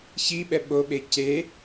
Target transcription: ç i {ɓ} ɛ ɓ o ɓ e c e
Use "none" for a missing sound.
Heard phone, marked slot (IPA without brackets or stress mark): ɓ